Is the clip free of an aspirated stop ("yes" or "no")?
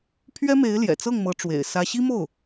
no